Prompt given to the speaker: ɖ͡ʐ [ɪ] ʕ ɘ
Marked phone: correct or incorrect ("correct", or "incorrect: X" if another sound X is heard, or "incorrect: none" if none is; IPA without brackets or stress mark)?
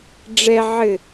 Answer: incorrect: ɛ